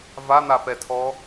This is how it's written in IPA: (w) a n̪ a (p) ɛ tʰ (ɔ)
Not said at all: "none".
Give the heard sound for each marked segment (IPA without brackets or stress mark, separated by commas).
v, p, ɔ